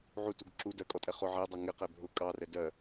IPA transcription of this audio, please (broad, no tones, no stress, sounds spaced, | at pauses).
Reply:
ʕ u t u ɡ ǁ u d ɜ kʼ ɔ tʼ ɛ χ ʊ ʕ ɛ dˤ ʌ ŋ ɪ q ɛ bʱ ʊ kʼ ɑ r ɛ d ɜ